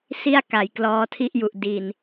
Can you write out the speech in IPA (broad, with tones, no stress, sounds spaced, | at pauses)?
s i˥˩ a̯ k a˩˦ j k l ɔː˦˥ tʰ i˥˩ ʔ j u˨˩ ʔ d i˨˩ n